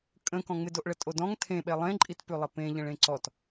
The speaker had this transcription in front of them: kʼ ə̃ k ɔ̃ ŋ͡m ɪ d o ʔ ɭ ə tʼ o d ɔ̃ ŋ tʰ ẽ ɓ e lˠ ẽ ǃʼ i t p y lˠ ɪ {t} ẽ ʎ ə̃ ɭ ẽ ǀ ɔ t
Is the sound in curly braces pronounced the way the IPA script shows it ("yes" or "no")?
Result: no